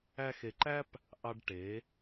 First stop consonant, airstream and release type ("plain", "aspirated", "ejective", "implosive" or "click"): click